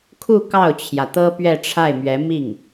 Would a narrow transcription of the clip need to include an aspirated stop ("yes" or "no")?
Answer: yes